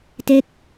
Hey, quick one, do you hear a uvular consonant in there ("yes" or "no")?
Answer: no